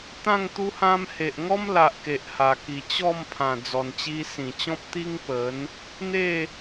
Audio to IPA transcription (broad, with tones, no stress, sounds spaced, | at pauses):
t̪ ã˥˧ ŋ t̪ u˦ h ã˦ m h e˨ ʔ ŋ ɔ˦ m l a˨ ʔ k e˨ ʔ h a˨˩ k i˨˩ t͡ɕ ɔ˥˧ m pʰ ã˨˩ d͡z ɔ˨˩ n t͡ɕ i˧ s ĩ˨˩ t͡ɕ ɔ̃˦ p̚ t̪ i˦ ŋ p ə˨˦ n | n̪ e˥˧